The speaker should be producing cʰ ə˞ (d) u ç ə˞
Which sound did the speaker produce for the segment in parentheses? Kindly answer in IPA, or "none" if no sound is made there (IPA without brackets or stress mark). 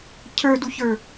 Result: d